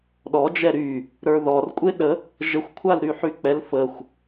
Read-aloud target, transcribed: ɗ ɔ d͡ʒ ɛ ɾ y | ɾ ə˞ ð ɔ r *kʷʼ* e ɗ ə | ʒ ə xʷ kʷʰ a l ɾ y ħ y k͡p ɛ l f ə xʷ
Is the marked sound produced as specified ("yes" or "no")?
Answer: yes